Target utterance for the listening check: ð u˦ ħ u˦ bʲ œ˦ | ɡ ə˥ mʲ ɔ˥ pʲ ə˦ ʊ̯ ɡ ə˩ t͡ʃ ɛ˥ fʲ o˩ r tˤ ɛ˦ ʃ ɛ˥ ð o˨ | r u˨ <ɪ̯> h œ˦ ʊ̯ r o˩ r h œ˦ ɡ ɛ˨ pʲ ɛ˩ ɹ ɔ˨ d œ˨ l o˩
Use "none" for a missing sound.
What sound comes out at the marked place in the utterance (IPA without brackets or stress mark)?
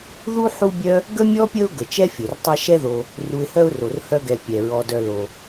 ɪ̯